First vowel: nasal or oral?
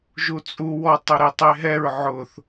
oral